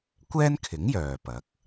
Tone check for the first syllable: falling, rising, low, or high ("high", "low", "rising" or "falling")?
high